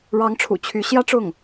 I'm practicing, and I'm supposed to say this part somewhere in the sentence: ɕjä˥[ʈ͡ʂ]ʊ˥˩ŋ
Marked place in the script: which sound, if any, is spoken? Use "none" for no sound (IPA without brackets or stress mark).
ʈ͡ʂ